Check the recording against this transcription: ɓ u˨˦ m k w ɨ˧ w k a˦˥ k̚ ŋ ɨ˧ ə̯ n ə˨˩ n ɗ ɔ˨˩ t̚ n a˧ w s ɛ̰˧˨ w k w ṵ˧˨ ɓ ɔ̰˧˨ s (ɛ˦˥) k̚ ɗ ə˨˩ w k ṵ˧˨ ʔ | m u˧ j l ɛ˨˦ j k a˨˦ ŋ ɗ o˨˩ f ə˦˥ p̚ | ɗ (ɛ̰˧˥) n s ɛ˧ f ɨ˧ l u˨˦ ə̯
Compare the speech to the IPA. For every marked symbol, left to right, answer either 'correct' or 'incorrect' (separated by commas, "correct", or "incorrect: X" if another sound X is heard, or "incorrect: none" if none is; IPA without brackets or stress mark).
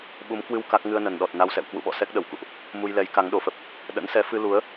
correct, incorrect: ə̰˧˥